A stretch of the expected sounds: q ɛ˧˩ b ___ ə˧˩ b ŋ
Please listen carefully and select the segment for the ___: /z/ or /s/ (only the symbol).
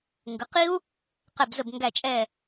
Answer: z